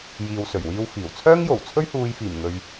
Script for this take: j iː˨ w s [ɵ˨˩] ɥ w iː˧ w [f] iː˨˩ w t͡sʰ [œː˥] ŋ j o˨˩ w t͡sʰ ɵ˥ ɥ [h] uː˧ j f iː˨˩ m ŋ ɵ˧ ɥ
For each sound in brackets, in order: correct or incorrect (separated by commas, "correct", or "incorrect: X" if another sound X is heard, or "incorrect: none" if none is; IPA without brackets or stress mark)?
correct, correct, correct, correct